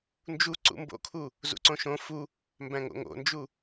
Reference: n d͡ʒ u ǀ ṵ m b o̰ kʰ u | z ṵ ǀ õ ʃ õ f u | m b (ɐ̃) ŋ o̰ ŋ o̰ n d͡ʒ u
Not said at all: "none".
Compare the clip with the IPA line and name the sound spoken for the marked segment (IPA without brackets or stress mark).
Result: æ̃